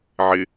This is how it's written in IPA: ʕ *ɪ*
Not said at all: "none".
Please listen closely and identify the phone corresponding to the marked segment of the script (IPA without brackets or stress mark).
ɪ